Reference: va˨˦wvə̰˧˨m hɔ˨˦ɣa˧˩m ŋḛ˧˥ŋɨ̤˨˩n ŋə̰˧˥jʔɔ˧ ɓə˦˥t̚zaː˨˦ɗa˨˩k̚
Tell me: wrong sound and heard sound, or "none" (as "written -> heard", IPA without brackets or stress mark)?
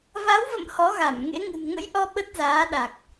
none